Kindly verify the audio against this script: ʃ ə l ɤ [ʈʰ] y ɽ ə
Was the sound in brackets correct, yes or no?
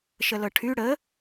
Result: yes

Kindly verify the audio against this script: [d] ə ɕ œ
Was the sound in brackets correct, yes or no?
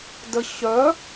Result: yes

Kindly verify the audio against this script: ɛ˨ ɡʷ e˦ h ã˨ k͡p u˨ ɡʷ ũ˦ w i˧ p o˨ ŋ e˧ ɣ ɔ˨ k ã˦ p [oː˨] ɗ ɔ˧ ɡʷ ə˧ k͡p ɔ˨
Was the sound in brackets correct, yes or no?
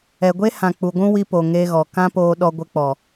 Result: no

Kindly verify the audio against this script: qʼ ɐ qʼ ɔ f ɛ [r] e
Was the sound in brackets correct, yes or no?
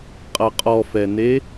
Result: no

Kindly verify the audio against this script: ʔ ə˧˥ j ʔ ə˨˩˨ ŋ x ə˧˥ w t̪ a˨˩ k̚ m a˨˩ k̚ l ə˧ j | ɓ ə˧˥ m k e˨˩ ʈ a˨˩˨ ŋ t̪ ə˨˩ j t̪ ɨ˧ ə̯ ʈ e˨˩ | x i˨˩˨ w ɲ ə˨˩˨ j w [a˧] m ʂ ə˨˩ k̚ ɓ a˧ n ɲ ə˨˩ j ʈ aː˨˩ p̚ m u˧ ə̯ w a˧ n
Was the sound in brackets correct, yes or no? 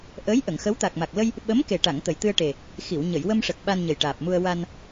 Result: no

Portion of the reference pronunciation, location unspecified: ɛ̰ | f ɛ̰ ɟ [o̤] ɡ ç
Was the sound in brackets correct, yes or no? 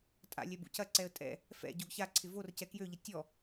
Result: no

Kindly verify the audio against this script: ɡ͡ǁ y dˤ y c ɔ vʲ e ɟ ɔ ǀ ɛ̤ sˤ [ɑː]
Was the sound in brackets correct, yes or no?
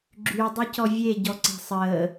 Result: no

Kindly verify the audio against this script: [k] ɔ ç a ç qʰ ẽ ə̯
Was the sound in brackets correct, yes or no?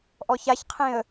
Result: no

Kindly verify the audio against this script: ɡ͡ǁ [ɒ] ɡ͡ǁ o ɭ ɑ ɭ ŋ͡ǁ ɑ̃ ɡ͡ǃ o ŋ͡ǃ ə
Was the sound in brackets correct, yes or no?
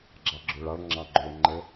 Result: no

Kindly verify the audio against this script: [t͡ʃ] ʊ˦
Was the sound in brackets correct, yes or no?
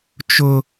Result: yes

